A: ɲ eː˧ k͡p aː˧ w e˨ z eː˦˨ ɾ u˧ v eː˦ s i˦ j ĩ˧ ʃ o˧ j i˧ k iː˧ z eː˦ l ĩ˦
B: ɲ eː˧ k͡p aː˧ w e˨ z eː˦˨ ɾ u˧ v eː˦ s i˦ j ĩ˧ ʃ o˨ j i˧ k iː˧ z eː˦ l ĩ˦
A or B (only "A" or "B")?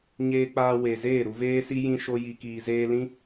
A